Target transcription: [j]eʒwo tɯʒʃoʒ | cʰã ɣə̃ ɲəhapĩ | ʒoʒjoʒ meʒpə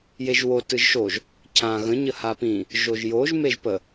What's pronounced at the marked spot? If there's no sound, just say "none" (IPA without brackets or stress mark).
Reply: j